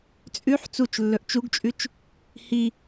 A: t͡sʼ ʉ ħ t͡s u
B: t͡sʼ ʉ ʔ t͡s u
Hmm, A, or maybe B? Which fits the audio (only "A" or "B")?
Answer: A